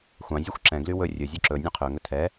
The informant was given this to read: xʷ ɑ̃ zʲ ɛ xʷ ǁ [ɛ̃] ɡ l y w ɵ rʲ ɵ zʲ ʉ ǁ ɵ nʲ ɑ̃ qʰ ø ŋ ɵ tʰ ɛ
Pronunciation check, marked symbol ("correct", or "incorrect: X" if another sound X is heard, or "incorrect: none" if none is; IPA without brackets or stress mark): correct